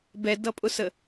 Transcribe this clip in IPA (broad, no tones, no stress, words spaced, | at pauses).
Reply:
bɛdʌpʼʊsə